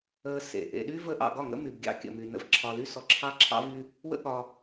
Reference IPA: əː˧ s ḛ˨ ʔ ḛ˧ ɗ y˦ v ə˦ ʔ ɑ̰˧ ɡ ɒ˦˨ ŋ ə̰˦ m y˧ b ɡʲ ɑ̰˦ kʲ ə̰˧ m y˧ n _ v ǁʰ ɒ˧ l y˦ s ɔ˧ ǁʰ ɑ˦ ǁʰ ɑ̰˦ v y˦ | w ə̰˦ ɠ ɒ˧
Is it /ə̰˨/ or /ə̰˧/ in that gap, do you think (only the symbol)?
ə̰˧